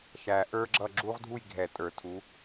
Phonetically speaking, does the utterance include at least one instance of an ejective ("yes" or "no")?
yes